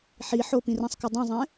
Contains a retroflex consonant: no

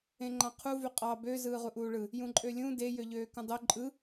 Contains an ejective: yes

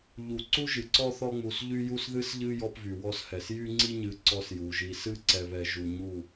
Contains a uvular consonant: no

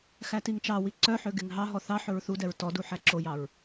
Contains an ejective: no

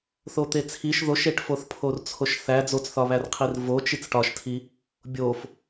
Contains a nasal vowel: no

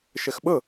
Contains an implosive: yes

